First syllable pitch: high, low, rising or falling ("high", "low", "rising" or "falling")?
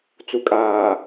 low